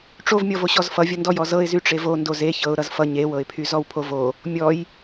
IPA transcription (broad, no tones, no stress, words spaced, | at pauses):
ʈ͡ʂovmʲɔv oɕɔzfʌvʲʌ ndɔjɔzɤɪ̯zy ʈ͡ʂevo ndoze çɤʊ̯ ɾʌzfʌ ɲewɤɪ̯pʰy zɔwpʰovo | mʲɔj